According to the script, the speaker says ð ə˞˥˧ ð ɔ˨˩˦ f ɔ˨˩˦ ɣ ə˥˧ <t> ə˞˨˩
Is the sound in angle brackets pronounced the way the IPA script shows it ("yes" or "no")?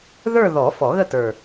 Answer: yes